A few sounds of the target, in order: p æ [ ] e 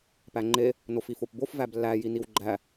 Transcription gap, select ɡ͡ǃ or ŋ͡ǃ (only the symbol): ŋ͡ǃ